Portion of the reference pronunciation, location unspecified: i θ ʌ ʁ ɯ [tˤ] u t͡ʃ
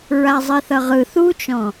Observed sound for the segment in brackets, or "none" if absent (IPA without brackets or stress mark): θ